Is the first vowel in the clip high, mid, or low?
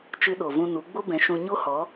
high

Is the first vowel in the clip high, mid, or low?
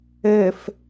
mid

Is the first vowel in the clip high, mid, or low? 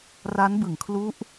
low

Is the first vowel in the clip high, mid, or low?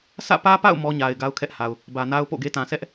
low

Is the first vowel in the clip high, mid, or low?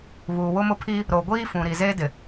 high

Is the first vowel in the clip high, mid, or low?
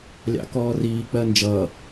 low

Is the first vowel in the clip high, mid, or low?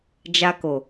low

